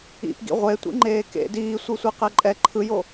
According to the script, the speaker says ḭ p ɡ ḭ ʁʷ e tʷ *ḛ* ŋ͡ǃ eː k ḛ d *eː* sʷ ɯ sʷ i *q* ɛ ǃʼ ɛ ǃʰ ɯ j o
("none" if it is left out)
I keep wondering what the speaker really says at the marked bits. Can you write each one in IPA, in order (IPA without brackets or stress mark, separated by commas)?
ḭ, iː, q